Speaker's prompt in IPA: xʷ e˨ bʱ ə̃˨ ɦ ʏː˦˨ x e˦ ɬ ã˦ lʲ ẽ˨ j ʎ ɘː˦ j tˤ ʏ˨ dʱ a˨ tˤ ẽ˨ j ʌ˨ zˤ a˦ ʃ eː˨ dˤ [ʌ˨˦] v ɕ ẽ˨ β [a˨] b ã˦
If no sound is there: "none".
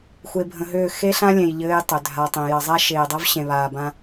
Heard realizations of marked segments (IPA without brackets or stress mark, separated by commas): ʌ˦, aː˨